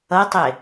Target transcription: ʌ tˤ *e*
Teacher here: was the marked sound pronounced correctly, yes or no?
yes